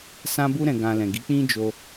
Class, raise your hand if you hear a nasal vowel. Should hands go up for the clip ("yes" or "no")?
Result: yes